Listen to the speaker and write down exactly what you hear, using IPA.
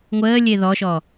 ŋʷəːlʲe ðɔʃɔ

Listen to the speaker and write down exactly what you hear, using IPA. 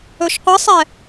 ɵʃqʷɯsˤɛ

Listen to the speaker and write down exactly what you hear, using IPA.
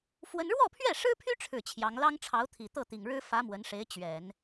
fwə˥n ɻwɔ˥˧pʰɥɛ˥˩ʂɻ̩˥pʰy˥ ʈ͡ʂʰɻ̩˥˩t͡ɕʰjɑ˧˥ŋ lɑ˥ŋʈ͡ʂʰɑ˧˥ʊ̯t̪ʰi˨˩ t̪ɤ˥˩t̪i˨˩ŋɻɻ̩˥ fä˧˥ mwə˧˥nʂe˧˥ɪ̯ t͡ɕɥɛ˨˩˦n

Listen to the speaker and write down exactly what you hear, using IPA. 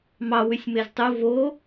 mɑ wysʲmeztˤu vo

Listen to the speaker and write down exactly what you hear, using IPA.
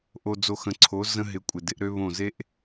ʔo˨d͡zo˨ xə̃˨ǀʰo˨˦ zə̃˦ɦɪ˨˦kʷʼɪ˨dɪ˦ʔ ɾø˦βõ˦˨ ze˦ʔ

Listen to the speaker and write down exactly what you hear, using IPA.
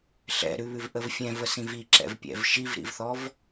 ɬɛ̰ɾʉβʉvʔəv fʲɛ̃vəsĩv iǁɛ̰vpʲɛ̰v ʃivɾḭvθɔv

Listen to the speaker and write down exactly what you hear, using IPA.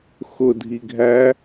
xʊdʱiɡʱæ

